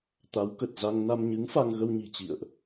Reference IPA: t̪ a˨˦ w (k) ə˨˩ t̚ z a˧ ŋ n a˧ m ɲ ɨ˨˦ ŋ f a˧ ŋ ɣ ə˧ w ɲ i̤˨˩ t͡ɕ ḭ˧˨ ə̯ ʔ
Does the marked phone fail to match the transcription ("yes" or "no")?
no